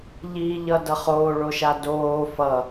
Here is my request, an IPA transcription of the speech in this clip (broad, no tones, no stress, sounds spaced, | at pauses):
ʎ iː ʎ ʌ d ʌ χ oː ɭ o ʃ a d oː f ʌ